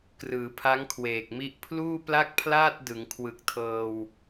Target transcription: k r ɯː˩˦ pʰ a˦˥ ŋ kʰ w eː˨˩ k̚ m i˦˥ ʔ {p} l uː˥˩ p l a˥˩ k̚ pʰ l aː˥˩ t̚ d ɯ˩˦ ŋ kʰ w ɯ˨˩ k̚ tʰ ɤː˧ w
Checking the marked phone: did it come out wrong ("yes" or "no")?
yes